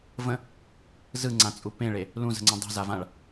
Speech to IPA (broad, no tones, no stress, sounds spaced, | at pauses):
v ə̃ | z ɯ ŋ͡ǀ ã t͡sʼ u p ẽ ɭ e | l ũ z ə̤ ŋ͡ǀ ũ dˤ i̤ z a v ã ɭ